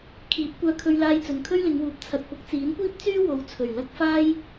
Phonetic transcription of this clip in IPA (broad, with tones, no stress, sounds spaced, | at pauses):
kʰ iː˨˥ p̚ kʷ œː˧ kʰ ɵ˧ ɥ l aː˧ j t͡s ɵ˨ n kʰ ɵ˥ ɥ l ɪ˨˧ ŋ w uː˨˥ p̚ t͡sʰ ɐ˨ t̚ p ʊ˨˥ k̚ t͡s iː˨˥ n kʷ iː˥ p̚ t͡s yː˥ w o˨˧ w t͡sʰ ɵ˨˩ ɥ l ɐ˥ k̚ f aː˥ j